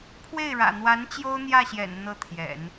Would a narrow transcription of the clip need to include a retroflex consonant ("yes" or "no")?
yes